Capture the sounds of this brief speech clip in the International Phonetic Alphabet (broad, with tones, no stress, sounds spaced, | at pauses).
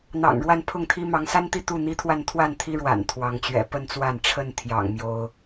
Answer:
n̪ ɑ̰˨˩ ŋ ɻ w a˥˨ n pʰ ʊ˥˨ ŋ t̪ʰ i˦ m ɑ˨˦ ŋ s a˦ n t̪ i˥˨ t̪ u˥˨ n̪ i˦ t̪ʰ w a˥˨ n t̪ʰ w a˥˨ n t̪ʰ i˦ ɻ w a̰˨˩ n t̪ʰ w ɑ˨˦ ŋ t͡ɕ ɥ ɛ̰˨˩ p ə˥˨ n t͡s w a˥˨ n ʈ͡ʂʰ ə˥˨ n t̪ʰ j ɑ̰˨˩ ŋ m j o˦ ʊ̯